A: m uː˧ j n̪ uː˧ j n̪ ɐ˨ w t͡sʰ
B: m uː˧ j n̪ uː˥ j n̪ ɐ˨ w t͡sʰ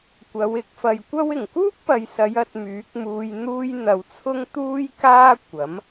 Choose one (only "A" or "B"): A